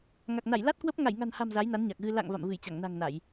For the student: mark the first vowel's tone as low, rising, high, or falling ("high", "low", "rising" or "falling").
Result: low